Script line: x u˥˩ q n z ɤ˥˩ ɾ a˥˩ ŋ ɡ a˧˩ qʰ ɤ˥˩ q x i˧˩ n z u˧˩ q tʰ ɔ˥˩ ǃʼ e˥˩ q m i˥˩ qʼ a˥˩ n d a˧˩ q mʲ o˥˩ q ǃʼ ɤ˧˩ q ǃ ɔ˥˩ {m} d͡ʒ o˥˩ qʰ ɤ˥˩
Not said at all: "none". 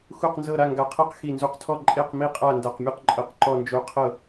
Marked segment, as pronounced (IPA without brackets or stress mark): n